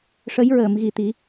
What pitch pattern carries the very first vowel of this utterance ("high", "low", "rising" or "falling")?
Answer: rising